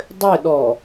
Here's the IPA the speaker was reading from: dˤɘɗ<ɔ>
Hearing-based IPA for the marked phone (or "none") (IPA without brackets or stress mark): ɔ